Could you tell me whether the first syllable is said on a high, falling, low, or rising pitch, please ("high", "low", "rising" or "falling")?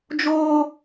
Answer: high